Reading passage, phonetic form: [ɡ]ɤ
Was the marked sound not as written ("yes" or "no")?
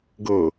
no